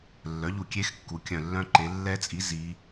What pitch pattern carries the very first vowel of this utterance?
rising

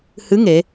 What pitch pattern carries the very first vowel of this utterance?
rising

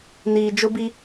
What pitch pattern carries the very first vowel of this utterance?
low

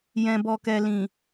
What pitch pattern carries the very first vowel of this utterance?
low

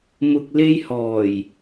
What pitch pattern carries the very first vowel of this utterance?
low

